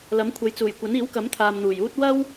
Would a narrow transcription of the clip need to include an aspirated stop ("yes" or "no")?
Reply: yes